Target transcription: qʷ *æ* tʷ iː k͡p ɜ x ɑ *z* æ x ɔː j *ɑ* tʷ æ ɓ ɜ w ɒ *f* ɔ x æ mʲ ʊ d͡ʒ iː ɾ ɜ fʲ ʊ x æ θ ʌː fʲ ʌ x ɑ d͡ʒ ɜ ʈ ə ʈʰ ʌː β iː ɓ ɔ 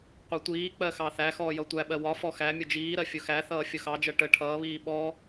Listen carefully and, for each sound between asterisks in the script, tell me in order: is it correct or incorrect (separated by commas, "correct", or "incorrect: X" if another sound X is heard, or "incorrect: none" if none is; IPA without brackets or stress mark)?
incorrect: ɜ, incorrect: θ, incorrect: ʌ, correct